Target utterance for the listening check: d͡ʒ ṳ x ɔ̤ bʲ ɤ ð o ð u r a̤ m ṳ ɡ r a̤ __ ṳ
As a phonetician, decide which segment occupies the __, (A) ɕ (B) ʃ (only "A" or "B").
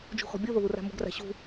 A